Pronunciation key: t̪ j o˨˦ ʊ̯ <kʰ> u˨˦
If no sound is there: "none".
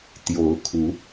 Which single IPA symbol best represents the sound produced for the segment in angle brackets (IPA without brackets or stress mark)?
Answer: kʰ